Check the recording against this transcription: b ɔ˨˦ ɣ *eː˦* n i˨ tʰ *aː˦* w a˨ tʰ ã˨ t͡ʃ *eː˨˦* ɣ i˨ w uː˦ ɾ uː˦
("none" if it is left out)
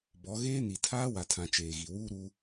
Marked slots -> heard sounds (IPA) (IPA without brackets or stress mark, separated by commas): eː˦, aː˦, eː˨